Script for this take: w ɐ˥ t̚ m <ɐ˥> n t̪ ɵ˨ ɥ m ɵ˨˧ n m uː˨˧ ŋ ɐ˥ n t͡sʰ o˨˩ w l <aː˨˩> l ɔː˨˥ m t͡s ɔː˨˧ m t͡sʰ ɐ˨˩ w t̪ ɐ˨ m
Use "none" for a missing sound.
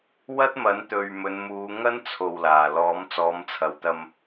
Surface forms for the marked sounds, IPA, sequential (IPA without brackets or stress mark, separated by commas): ɐ˨˥, aː˨˩